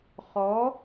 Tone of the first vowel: rising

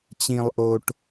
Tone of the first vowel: low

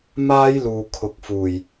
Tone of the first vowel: high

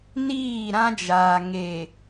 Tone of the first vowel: falling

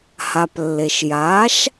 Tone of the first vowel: low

